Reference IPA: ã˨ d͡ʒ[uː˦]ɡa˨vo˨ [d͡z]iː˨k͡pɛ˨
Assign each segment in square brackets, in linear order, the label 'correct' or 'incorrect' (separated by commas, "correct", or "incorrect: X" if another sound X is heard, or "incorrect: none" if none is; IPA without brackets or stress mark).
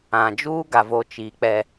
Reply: correct, incorrect: t͡ʃ